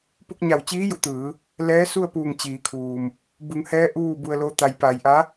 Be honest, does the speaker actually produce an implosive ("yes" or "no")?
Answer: no